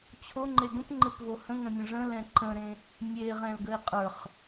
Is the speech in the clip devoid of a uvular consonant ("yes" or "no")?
no